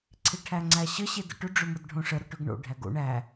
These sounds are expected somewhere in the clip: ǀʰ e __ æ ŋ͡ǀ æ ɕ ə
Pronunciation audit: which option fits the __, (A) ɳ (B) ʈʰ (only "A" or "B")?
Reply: B